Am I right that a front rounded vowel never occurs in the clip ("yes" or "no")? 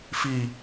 yes